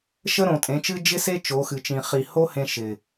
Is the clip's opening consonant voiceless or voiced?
voiceless